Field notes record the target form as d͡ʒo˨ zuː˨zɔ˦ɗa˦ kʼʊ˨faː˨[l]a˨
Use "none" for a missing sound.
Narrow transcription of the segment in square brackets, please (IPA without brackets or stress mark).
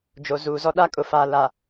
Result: l